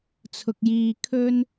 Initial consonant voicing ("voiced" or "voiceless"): voiceless